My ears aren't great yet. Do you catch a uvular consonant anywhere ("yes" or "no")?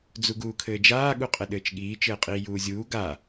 yes